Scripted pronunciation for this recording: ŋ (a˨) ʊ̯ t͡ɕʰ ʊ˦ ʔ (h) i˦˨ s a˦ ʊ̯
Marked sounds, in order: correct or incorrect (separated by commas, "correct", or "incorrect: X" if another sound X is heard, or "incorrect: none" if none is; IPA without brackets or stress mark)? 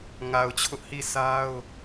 correct, correct